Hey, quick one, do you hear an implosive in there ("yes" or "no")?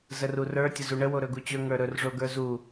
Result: no